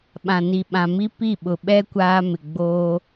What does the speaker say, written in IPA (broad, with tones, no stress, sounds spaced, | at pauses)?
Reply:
ɓ ã˨ n i˨ ɓ ã˨ m i˦ p i˦˨ ɓ ʊ˨ ɓ ɛ˦ kʷ aː˦ m ɪ˨ ɡ͡b oː˦